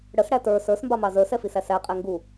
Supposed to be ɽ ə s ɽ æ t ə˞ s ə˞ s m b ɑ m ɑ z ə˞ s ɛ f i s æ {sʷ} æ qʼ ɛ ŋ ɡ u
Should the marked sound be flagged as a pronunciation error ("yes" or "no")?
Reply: yes